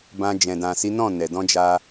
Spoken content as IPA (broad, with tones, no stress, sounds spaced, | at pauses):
b ã˧ d͡ʒ ɛ̃˨ d ã˨ s i˨˦ n ɔ̃˦˨ n ɛ˨ d ɔ̃˧ d͡ʒ a˧